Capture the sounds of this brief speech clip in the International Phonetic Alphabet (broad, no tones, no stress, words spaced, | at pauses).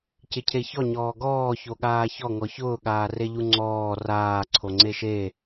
cɪcʰeçɔ ɲɔːɡɔː çoɠaːçɔ ŋɔçʊː ɠaːreʎuŋ͡ǀɔː raː ǀʰoŋ͡ǀeʃe